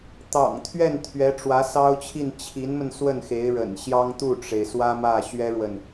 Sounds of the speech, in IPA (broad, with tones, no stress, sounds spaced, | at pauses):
t̪ ɑ̰˨˩ ŋ t̪ʰ ɥ ɛ˥˩ n t̪ʰ ɥ ɛ˧˥ ʈ͡ʂ w ä˧˥ s ɑ˥ ʊ̯ t͡ɕʰ i˥˩ n t͡ɕʰ i˧˥ n m ə˧ n s w ə˥˩ n x e˧˥ ɪ̯ ɻ ə̰˨˩ n ɕ j ɑ˥ ŋ t̪ u˥˩ ʈ͡ʂ e˩ ɪ̯ s w ä˥ m ä˥˩ ɕ ɥ ɛ˥ ɻ w ə˨ n